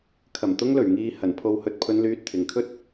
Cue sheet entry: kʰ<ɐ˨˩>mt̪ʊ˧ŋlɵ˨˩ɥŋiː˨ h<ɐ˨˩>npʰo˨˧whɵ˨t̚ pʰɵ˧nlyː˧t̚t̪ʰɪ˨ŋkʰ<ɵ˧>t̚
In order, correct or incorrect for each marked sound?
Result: correct, correct, incorrect: ɵ˥

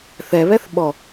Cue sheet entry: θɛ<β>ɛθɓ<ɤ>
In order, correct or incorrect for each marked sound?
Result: correct, incorrect: ɔ

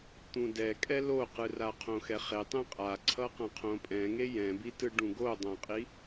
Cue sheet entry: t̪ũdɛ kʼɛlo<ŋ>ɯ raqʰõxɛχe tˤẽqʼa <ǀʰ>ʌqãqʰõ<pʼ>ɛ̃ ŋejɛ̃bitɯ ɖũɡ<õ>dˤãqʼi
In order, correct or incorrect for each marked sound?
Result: incorrect: q, correct, correct, incorrect: o

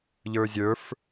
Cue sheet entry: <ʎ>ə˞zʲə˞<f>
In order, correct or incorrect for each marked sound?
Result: correct, correct

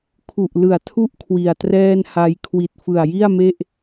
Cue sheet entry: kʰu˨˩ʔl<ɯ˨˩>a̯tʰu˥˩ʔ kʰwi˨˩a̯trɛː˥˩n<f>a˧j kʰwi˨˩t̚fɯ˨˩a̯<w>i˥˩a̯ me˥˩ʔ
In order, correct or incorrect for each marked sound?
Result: correct, incorrect: h, incorrect: j

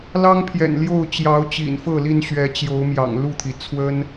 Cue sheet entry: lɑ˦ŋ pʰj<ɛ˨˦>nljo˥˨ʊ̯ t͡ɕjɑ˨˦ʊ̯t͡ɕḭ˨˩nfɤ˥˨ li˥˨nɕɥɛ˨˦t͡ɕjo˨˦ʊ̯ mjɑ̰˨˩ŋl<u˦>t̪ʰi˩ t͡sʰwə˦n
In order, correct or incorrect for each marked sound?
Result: incorrect: ɛ̰˨˩, incorrect: u˥˨

